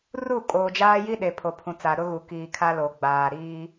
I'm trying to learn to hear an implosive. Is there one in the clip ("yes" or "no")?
yes